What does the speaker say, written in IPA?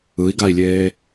ɯ i̯ ɡ a i̯ lʲ eː

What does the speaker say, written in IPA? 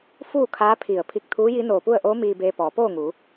f uː˥˨ kʰ aː˧˥ pʰ i˧˩ ə̯ pʰ i˧ k̚ t̪ʰ uː˧˥ j i˧˥ n oː˧˩ p u˥˨ ə̯ ʔ oː˧˥ m iː˧ b eː˧ p ɔː˩˧ p oː˥˨ ŋ uː˩˧

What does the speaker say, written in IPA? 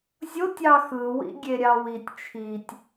zʲ o tʲ ɑ x ɯ w ḭ ɡʲ e ɾʲ ɑ w i tʲ t͡ʃʰ i tʲ

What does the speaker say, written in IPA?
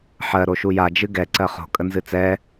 ħ ɜ ɾ o ʃ u j a d͡ʒ ɨ ɡ ɛ ǀ ɜ χ o̤ kʼ ə n z ɨ t͡s ɛ

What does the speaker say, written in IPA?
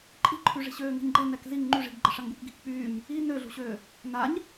ǃʼ i̤ ǃʰ y ʐ i̤ ɕ øː ŋ i̤ ɲ ɡ͡ǃ ɛ n ɛ k z i ŋ ŋ͡ǃ y ʐ i̤ ɡ ɡ͡ǃ ə ʂ a ŋ ɡ u k ɡ i̤ k k͡p yː ɲ | i n ø ɮ ṳ ɕ øː | n a ɲ

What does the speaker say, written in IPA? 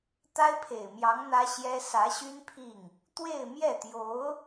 t̪ a˥ ɪ̯ pʰ e˨˩ ɪ̯ m j ɑ˧˥ ŋ n̪ ä˥ ɕ j ɛ˥ s ä˧˥ ɕ y˥ n pʰ i˥˩ ŋ | t̪ w e˥˧ ɪ̯ m j ɛ˥˩ t̪ j o˧˥ ʊ̯

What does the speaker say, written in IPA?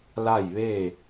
l a˥˨ j ʋ e˥˨

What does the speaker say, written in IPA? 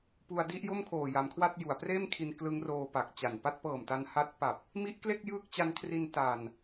p u˧ a̯ d i˥˩ ʔ j o˥˩ m kʰ oː˨˩ j a˩˦ m kʰ w a˥˩ t̚ j u˩˦ a̯ p r eː˥˩ m kʰ i˧ n k l ɯ˦˥ ŋ r oː˧ p a˨˩ k̚ t͡ɕ a˨˩ n p a˥˩ t̚ p ɤː˨˩ m t a˧ n h a˦˥ t̚ p a˨˩ p̚ | m i˦˥ ʔ k l e˥˩ k̚ j ɯː˦˥ k̚ t͡ɕ a˧ n kʰ r i˧ n t a˨˩ n

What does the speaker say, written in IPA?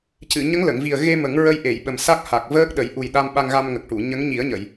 c ɨ˨˩˨ ɲ ə˧˥ ŋ l ə˨˩˨ ŋ v i˨˩ ə̯ ɣ e˧ m ə˨˩˦ ŋ ɹ ə˧ j ʔ e˨˩˨ j ɓ ə˨˩ m s a˦˥ k̚ h a˨˩ k̚ v əː˦˥ k̚ ɗ ə˨˩˦ j ʔ u˨˩ j ɗ a˧ m ɓ a˧ ŋ ɣ a˧ m ŋ ə˨˩ k̚ ʈ u˨˩˨ ɲ ə˧˥ ŋ ɲ i˨˩˦ ə̯ ɲ ə˨˩˨ j

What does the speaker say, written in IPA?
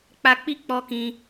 k͡p a˧ k͡p i˦ k͡p ɔ˧ k ĩ˧

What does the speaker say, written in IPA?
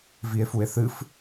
v i e̯ f u e̯ θ ɨ f

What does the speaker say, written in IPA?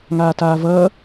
ŋ aː t aː v ʌː

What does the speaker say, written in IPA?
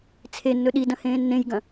t͡sʰ e nː ɵ ɗ i d ɐ̃ h ẽː nː ẽ j ɡ ɐ̃

